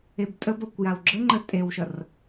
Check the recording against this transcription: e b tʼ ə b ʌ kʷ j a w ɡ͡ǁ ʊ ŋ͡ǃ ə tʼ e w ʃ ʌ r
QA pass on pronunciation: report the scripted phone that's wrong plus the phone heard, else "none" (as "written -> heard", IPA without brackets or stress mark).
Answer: ʊ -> ə